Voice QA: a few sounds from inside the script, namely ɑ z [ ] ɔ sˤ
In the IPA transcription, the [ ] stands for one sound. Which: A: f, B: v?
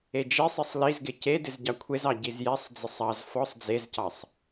A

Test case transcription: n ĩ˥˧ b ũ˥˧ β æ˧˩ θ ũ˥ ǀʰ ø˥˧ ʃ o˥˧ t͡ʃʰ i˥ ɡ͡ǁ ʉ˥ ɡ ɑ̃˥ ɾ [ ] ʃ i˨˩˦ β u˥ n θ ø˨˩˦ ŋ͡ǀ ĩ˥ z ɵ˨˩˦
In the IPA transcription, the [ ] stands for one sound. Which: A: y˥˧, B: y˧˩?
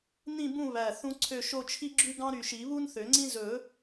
B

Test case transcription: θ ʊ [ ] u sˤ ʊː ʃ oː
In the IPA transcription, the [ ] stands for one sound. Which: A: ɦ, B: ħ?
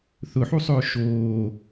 B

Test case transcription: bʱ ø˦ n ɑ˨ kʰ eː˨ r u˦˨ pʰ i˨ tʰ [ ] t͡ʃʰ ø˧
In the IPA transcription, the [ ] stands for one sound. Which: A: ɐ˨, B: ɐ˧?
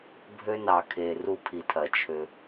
A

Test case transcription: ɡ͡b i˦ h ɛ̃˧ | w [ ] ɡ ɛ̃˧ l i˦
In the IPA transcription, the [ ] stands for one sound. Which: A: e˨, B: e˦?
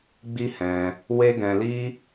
B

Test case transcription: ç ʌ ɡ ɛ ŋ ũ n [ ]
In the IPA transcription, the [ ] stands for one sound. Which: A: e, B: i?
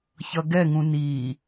B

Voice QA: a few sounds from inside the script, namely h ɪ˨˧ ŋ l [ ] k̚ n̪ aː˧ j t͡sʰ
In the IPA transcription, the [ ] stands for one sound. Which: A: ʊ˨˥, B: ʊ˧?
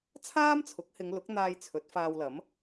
A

